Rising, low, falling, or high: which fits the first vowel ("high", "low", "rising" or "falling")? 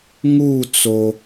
falling